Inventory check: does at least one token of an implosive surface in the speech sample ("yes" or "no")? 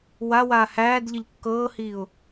no